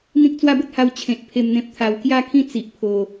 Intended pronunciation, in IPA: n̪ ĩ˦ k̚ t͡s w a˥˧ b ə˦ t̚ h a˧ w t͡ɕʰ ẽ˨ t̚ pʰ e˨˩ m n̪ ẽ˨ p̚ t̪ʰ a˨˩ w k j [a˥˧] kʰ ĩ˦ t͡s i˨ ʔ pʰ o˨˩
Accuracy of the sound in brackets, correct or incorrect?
correct